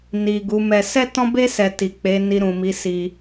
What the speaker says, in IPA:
ni˨ ɡu˨˦mɛ˧ sɛ˦tɔ̃˦be˦ sɛ˧ti˨ k͡pe˨˦ni˧ɾũ˨mi˨˦ si˧

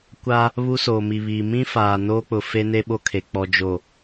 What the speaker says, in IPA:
kʷa˦ | βu˦soː˨mi˨βiː˨ mĩ˦faː˨ noː˦k͡pʊ˨ fe˦ne˦ ɓo˦kʰe˨ k͡pɔ˨d͡ʒo˨

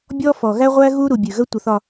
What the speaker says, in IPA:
bʲɔ˦fɔ˨ ɣæ˦ʁʷæ˦ ɣu˦ɾu˨ bʲʉ˨ ɣə˦tʷə˨θɒ˨

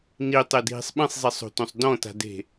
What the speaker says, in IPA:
nitˤedʱi̤sˤ ɓĩsˤzˤisˤo̤tõsˤ dɔ̃ta̤de̤

